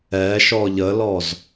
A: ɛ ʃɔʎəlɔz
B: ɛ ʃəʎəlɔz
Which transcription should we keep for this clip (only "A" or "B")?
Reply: A